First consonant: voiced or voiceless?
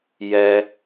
voiced